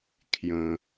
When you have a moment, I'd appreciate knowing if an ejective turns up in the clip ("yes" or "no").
no